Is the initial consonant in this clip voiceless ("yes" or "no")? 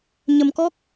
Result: no